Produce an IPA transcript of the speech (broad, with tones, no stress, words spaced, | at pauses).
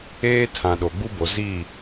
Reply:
eː˦tʰã˨ ɗo˨ɡ͡bu˦bo˨ zi˦˨